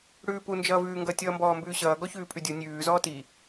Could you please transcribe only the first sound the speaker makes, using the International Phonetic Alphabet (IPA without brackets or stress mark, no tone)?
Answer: ɽ